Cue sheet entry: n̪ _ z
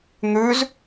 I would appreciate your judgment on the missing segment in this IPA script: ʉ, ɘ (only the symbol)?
ʉ